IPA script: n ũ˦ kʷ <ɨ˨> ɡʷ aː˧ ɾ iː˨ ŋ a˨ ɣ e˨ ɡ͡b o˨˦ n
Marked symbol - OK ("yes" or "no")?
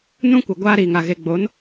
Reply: yes